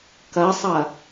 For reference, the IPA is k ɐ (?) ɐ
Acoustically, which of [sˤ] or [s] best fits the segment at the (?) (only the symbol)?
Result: sˤ